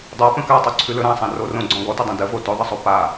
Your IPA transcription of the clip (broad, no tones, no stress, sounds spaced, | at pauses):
dˤ a p ə̃ k a tˤ o ǀʰ ʉ l ɵ ɾ ã sˤ ã r o r õ ɡ͡ǀ ɔ̃ ɡ ɔ t ə dˤ õ d ə v o t ɵ ðˤ ə sˤ o p a